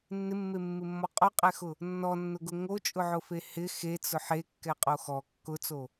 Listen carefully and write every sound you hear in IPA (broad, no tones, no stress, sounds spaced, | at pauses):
nː ɪ mː e mː ɪ mː ɔ qʼ o qʼ ɛ x ʊ | nː ɔ nː ʊ ɡ ʊ ŋ o t͡ʃʼ ʊ ʕ ʊ f e h ɪ x e t͡s ʊ ħ e kː ɛ qʼ o x ɔ kː ʊ t͡s o